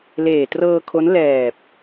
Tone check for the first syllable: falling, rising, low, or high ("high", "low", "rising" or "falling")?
low